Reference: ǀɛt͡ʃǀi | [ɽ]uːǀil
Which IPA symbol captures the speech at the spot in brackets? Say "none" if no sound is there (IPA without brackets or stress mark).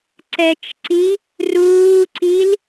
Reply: r